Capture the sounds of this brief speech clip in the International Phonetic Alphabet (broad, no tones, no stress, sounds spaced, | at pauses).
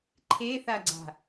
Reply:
ǃʰ e θ a ɡ͡ǀ a̤